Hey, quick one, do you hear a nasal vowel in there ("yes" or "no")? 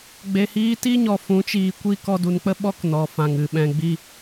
yes